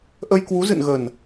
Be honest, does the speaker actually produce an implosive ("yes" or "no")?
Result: no